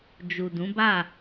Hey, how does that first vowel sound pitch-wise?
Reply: low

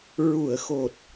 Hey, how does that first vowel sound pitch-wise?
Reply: low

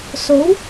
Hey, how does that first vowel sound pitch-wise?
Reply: rising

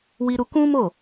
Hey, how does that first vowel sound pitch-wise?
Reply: high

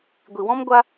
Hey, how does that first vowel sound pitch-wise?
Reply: low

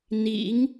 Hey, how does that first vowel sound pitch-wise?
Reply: rising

